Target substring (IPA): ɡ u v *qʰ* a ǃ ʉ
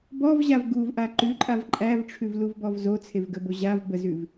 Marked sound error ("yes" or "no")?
yes